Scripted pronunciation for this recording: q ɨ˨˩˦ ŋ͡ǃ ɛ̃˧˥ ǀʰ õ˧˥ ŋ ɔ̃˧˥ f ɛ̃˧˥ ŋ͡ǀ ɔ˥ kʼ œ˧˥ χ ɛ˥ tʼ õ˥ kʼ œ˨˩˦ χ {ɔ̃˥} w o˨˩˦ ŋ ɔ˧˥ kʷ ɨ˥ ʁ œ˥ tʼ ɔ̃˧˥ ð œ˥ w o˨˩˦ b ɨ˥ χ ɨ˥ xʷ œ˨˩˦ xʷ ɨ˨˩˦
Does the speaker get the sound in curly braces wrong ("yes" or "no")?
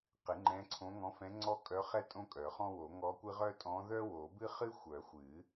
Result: no